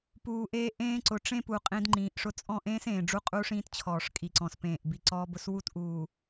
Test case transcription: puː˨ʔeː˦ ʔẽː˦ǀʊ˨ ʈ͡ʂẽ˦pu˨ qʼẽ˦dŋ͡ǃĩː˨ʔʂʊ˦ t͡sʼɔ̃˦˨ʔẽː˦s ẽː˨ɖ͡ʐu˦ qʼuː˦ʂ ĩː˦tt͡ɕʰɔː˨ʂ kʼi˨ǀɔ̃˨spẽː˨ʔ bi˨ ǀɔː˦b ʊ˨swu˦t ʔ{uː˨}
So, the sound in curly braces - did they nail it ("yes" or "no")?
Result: yes